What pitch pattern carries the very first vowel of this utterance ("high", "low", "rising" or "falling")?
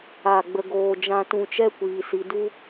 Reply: falling